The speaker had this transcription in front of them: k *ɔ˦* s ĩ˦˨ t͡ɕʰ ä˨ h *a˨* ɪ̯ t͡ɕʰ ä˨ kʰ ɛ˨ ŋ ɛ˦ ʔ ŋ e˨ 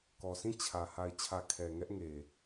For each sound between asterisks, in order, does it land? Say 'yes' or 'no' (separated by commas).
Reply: no, yes